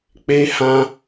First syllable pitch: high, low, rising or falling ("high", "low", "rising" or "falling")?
high